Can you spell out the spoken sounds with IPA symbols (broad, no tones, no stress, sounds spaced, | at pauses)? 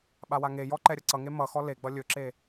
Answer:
ɓ a w a ŋ e j ɔ ǃ ɛ ɾʲ ʌ ǀ ʌ ŋ e m ʌ x ɔ l e ɡ͡b ʌ lʲ ɵ ǁ e